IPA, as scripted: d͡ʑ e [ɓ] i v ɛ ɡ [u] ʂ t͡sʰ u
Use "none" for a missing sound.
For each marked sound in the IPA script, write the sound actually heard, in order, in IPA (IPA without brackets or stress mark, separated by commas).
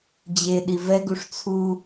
ɗ, u